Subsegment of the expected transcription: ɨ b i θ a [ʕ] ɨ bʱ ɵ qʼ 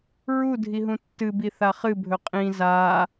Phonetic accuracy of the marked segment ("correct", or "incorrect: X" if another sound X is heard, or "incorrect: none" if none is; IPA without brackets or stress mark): incorrect: χ